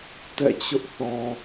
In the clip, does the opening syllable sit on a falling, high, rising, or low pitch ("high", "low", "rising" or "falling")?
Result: falling